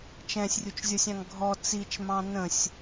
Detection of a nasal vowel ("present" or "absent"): present